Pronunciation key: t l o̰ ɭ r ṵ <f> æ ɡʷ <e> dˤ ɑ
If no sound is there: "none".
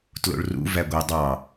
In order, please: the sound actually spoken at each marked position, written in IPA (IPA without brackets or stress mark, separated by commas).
v, e